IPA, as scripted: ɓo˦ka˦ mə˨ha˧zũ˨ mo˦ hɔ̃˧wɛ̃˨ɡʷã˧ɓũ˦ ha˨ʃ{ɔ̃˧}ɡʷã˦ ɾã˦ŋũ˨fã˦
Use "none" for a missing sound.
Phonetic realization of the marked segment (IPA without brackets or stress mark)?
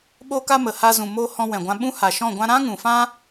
ɔ̃˦˨